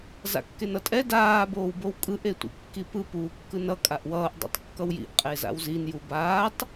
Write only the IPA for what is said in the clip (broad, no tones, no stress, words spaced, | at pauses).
za̰kːenʌtʼɛ daː boːwbowkʼɯʔ etʷḭkːipɯ puːkːɯnʌ kʼaʔwʌːʔ dˤo̰tˤkːʌwjḭʔ qʼeza̰wzin jubaːtˤ